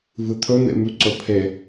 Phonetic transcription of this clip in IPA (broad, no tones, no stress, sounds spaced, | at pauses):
v ɨ t̪ʰ ɵ n̪ ḛ m ʉ ǀ ɵ pʰ e